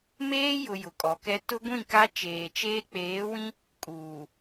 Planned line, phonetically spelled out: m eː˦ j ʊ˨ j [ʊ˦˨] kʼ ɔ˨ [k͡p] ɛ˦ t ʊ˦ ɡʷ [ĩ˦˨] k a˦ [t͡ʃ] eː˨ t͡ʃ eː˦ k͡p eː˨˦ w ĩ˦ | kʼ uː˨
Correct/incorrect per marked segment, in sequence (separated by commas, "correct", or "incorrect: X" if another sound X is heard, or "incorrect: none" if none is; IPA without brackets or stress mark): incorrect: ʊ˨, incorrect: k, correct, correct